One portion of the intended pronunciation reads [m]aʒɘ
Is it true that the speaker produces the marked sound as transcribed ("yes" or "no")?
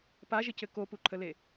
no